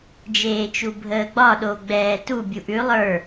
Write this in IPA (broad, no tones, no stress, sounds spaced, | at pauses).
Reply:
d͡ʒ eː t͡ʃ u bʱ əː ɡ͡b ɒ ɗ o ɡ͡b ɛː t u bʲ u ʔ ʉ lˠ ə˞